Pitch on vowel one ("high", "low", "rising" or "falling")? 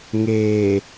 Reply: low